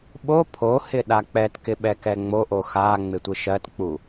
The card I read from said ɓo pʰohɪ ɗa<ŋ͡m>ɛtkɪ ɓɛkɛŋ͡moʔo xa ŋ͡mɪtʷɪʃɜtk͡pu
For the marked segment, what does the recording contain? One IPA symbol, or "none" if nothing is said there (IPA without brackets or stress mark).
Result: k͡p